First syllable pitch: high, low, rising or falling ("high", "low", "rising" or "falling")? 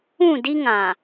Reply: falling